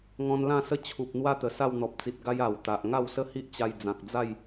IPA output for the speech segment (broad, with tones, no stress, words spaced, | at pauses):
ŋɔ̃˧nlã˥˧sə˥˧t͡ɕʰu˨p̚ n̪wa˦t̪ə˨˩ sa˥˧wn̪ɔ˨p̚t͡si˨t̚ɡa˦j a˨˩wt̪a˨ʔ ŋa˥˧wsə˦hi˦ʔt͡ɕa˧j d͡zã˨k̚d͡za˥˧j